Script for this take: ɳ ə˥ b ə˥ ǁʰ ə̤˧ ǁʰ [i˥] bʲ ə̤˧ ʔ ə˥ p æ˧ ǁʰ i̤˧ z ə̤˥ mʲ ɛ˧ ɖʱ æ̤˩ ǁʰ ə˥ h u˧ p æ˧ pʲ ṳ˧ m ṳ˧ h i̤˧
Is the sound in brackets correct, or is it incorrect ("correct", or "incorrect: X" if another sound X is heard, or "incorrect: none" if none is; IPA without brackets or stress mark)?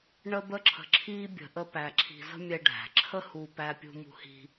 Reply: correct